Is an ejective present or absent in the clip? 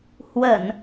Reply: absent